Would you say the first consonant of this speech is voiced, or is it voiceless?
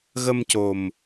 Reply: voiced